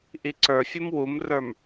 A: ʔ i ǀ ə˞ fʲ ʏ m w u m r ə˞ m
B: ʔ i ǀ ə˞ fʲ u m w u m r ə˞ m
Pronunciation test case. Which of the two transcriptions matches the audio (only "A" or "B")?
B